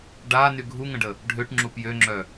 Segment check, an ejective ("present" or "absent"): absent